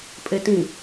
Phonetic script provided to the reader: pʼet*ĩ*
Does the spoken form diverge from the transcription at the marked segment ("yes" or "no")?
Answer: no